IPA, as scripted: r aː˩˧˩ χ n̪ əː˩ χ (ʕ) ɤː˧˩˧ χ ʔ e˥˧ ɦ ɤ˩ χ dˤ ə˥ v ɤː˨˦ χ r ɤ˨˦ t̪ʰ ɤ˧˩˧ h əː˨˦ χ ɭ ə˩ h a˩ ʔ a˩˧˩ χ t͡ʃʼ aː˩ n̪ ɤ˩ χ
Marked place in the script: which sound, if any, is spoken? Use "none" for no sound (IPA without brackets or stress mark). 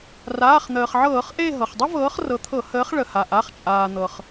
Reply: ʕ